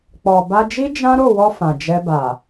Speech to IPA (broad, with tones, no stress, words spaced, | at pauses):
k͡pɔ˨ ba˧d͡ʒi˦ d͡ʒã˦ɾo˦˨wɔ˧ fã˨d͡ʒɛ˧ba˨